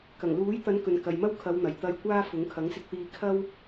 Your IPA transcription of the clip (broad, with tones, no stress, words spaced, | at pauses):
kɐ˨˩ŋluː˨˥jt̪ɐ˨˧n kɵ˨nkɐ˨jmɐ˥w kʰɐ˨˧wn̪ɐ˨˩j t̪ɐ˧jkʷaː˥fʊ˨˥ŋ kʰɐ˨˥ŋsɪ˧k̚t̪iː˧ kʰɐ˥w